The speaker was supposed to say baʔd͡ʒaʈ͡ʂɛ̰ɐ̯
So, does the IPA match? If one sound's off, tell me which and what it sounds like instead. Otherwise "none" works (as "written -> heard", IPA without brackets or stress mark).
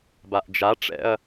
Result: none